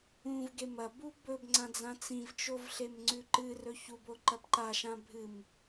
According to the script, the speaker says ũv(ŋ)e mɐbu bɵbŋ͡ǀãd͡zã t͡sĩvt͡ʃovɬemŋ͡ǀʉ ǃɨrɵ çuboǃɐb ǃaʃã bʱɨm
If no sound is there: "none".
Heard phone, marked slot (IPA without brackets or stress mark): ɡ